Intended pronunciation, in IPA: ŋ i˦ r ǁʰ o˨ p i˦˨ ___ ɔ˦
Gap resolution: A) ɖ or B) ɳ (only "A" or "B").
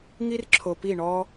B